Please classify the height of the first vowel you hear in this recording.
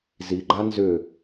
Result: high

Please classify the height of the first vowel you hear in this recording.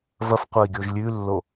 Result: low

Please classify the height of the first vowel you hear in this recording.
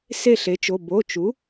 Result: mid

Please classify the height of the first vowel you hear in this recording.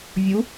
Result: high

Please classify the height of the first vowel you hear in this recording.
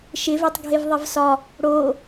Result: high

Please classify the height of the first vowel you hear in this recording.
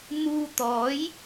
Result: high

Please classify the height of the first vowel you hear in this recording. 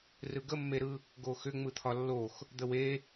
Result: high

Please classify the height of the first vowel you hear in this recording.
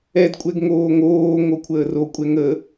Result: mid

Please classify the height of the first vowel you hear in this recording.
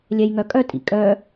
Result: mid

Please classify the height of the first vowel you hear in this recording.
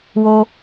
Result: mid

